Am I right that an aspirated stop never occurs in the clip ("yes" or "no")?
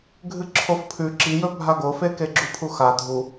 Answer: no